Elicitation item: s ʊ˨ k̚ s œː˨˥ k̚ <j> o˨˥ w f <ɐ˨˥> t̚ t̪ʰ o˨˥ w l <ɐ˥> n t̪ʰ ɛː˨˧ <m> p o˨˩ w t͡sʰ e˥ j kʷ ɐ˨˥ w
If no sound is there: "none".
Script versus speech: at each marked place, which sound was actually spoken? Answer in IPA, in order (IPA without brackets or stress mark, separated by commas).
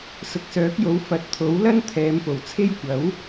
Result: j, ɐ˨˥, ɐ˥, m